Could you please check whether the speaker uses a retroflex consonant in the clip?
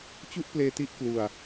no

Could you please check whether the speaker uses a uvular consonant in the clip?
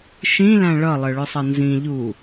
no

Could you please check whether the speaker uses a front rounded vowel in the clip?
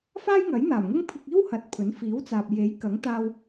no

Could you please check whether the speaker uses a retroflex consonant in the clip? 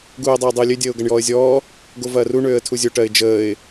yes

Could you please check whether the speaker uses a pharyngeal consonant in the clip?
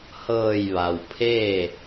no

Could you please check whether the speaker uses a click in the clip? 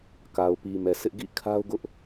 no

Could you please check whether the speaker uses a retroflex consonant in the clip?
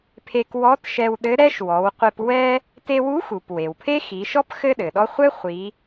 no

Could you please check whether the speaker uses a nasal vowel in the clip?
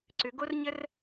no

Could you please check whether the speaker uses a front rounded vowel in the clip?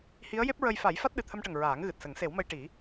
no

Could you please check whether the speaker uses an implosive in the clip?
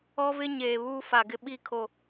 yes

